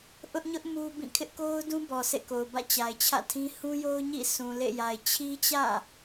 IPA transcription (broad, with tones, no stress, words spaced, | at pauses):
ʔʊ˦ʔɲʊ˦ʔ mu˦bĩ˦˨ kʰɪ˦ʔko˦ʊ̯dũ˦ bɔ˨sḛ˦˨ko˨ʊ̯ bä̰˦˨t͡ɕa˨ɪ̯t͡ɕʰä̰˦˨tʰĩ˦ hũ˦jo˦ʊ̯ɲḭ˦˨ sʰũ˨lḛ˦˨ja˨ɪ̯ t͡ɕʰi˦t͡ɕä̰˦˨